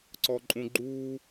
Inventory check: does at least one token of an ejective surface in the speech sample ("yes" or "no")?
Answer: yes